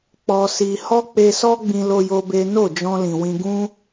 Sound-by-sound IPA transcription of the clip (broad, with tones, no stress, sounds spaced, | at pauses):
k͡p ɔ˧ s i˧ h ɔ˦ k͡p e˧ s ɔ˦ ɡ͡b ĩ˧ l o˧ j o˧ b e˦ n o˦˨ d͡ʒ ɔ̃˧ l ĩ˨ w ĩ˧ ɡ ũ˦